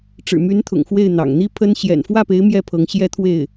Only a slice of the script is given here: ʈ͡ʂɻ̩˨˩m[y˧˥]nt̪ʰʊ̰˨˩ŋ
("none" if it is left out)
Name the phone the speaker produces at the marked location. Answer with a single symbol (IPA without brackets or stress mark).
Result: y˧˥